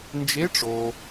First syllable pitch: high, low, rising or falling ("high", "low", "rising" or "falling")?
rising